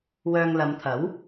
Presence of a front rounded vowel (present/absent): present